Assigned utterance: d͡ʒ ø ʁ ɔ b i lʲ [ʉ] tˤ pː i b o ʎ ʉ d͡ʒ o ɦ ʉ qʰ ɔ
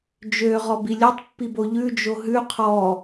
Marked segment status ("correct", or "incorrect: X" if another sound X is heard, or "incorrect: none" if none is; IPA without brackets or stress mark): incorrect: ø